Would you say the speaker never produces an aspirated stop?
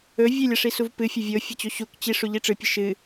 yes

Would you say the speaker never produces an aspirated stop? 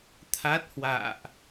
no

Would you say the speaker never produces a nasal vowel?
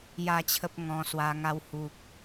no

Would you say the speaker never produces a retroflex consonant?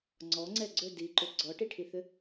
no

